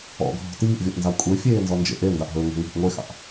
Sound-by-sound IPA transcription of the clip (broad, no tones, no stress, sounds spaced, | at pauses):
ɔ̰ ɡʱ ɔ̤ t iː ʔ vʲ ɔ ʔ n z ɑ kʷʼ e fʲ eː n z ɔ n d͡ʒ ḛ ʔ e n d ɑ ʔ ɦ ɵː ŋ ɛ̤ ŋ i̤ ʔ ŋʷ e x ɑ̰ ʔ